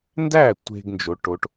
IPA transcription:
n d æ˥˨ tʷ e̤˧ ɡ n d͡ʒ o˧˥ ʈ o˧˥ ʈ

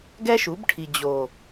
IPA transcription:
ɡ ɛ˦ ʃ u˨˦ b ʈʰ i˨ d͡ʑ o˨

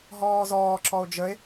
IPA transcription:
ɦ ɔː z ɔː ǁ ɔ o̯ d͡ʒ ə e̯

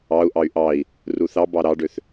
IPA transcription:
ɑ u̯ ʔ ɑ y̯ ʔ ɑ i̯ | r u θ ɑ b ɑ ɾ ɑ ɖ ø θ

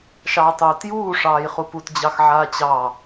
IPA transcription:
ʃ ɑː tˤ oː t j uː ʂ ɑː j χ u p u t d͡ʑ ɑ x ʕ aː t͡ɕ ɑ

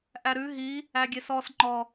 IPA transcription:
ʔ æ ɾ ʉ ɦ i | æ ɡʲ e s ɔ s ŋ͡ǃ ɔ

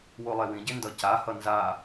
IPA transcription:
w o lˠ e w ĩ ɟ e n d ʌ c a h ʌ n z a

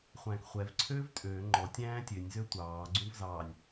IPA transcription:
χʷ æ̃ː k χʷ ɛ v ǀʰ øː v tʼ øː ŋ͡ǃ ɔ tʲ æ̃ː tʲ ø nʲ z ø tʷ ɑː ɡ͡ǀ ũ v z ɑː nʲ

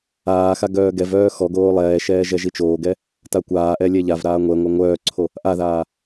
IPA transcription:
aː x a ɡ œː ɡ ɛ v œː x ɔ ɡ oː lˠ ɛː ʃ ɛː ʒ ɛ ʒ i t͡ʃ oː ɡ ɛ | t a kʷ aː ʔ ɛ lʲ ɛ ʎ a v ɾ aː ŋʷ ɛ ŋʷ œ ŋʷ œː ǀʰ o | ʔ a ð aː

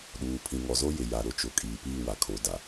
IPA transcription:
ɗ uː˨ pʰ ĩ˨ ŋ ɔ˨ z o˦ j ɪ˨ j a˨ ɾ ʊ˦ t͡ʃ ʊ˨ kʼ iː˨ p iː˦˨ w a˨ kʰ o˨˦ d a˨

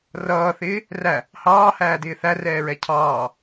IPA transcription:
r ʌː θ ɪː | r æ | h ɑː h æː d ɪː θ æ r ɛː ɹ ɛ cʰ ɑː

